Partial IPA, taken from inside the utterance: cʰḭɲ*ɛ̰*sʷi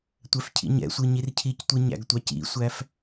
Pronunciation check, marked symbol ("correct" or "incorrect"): correct